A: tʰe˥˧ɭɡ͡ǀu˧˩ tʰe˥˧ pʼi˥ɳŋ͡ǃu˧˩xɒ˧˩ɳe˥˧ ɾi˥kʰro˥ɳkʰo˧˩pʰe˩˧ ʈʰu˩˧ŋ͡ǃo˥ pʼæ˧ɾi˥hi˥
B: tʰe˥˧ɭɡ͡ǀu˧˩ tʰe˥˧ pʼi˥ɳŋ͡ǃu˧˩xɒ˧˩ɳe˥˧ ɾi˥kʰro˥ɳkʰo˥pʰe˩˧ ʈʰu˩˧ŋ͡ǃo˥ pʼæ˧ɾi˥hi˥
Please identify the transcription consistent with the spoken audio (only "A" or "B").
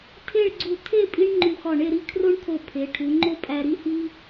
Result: A